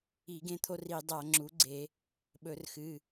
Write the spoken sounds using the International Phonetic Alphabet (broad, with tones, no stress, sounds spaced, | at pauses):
i˧˩˧ ɡ ẽ˦ t̪ʰ o˦ r i˧˩˧ dˤ a˧˩˧ ŋ͡ǁ u˩˥ ɡ͡ǀ e˧˩˧ | ɓ ɵ˧˩˧ r x ɨ˩˧˩